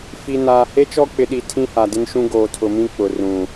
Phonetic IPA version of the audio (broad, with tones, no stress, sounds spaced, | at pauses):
f i˨ n aː˨ h e˦ t͡ʃ ɔ˦ k͡p ɪ˨ ɗ i˨ tʰ ĩ˦ h a˨ d ɪ˦ n ʃ ũ˦ ɡ oː˨ tʰ ʊ˨ m ĩ˦ k͡p ʊ˨ r ũ˨